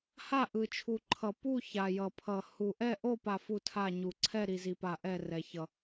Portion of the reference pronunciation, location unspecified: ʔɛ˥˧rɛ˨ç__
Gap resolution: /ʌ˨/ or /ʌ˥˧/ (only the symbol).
ʌ˨